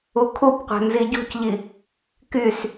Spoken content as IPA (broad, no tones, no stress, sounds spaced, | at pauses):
u kʰ u p qʷ æ̤ n z i ɟ ṳ c ʎ i | k y s